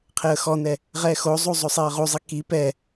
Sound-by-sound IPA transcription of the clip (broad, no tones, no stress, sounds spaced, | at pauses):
qʰ e ə̯ x ɔ n ɛ | ʁ ɛ x o zˤ u zˤ o sˤ e ə̯ ʁ u zˤ i k i p ɛ